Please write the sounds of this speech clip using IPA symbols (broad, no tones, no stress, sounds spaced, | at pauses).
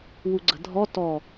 w u ɡ͡ǀ ə̤ dʱ ɔ t ɔ